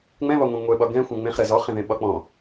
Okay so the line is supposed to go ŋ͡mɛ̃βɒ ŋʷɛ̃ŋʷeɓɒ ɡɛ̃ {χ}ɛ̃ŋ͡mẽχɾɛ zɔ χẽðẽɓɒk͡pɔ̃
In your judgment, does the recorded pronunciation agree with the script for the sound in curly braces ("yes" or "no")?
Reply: no